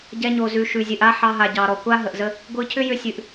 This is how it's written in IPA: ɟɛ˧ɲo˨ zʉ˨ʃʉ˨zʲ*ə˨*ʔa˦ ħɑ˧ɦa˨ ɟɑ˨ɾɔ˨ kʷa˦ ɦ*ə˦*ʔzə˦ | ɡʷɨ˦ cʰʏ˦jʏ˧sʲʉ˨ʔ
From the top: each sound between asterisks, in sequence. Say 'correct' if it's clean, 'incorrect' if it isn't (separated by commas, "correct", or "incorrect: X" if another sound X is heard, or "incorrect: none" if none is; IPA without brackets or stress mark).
incorrect: ɨ˨, incorrect: ə˨